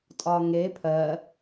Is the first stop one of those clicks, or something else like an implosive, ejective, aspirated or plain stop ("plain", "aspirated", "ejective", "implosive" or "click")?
ejective